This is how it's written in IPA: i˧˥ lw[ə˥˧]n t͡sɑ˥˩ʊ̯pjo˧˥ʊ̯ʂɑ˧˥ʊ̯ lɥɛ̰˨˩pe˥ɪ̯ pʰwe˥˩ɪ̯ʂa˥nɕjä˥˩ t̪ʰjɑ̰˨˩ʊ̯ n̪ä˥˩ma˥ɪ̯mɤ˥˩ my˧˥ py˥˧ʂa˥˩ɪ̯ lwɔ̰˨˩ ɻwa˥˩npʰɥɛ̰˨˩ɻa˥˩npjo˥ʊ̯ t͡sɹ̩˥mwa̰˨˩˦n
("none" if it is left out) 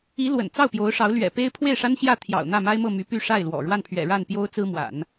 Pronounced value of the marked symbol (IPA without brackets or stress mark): ə̰˨˩